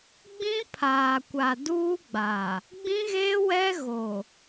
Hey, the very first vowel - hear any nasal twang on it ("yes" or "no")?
yes